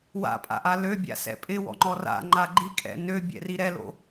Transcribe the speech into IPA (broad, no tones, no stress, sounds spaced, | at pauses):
w a̰ pʼ a̰ ʔ a l ø bʲ a̰ s ɛ̰ pʼ ɪ w ɔ̰ ŋ͡ǃ ɔ r a̰ ŋ͡ǃ a ɡ͡ǃ i kʼ ɛ̰ n ø bʲ ɛ̰ r i ɾ ɛ l o̰